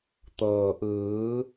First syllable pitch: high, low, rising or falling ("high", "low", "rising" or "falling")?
low